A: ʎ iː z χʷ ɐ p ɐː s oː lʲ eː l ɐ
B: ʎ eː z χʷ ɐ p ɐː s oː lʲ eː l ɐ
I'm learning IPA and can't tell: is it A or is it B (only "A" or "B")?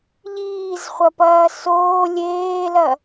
A